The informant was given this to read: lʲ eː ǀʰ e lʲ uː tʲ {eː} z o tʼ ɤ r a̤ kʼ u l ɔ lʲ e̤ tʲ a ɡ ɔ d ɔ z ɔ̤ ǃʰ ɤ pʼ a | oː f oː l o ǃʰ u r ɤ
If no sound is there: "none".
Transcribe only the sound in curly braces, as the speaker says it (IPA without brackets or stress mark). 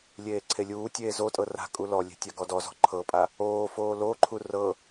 eː